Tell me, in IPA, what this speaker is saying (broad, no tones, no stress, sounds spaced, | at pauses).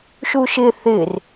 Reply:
ʃ u ʃ ɪ θ ɪ r